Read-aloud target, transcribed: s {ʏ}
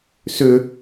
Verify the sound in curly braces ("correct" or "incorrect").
correct